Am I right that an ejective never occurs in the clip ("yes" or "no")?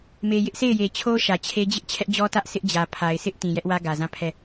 yes